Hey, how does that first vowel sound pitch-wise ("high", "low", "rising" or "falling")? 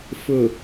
low